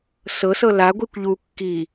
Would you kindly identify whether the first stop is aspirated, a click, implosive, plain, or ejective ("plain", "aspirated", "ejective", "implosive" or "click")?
plain